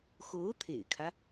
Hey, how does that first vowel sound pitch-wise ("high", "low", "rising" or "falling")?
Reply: rising